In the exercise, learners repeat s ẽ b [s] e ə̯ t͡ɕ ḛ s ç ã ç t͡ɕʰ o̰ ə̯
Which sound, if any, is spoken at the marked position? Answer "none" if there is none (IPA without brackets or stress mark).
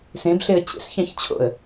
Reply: ɬ